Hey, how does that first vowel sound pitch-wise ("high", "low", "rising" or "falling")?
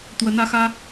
rising